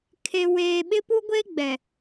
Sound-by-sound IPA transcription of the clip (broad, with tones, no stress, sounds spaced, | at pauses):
kʰ e˦ w eː˦ ɓ ɪ˦ p u˦ ɡʷ e˦ ɡ͡b ɛ˨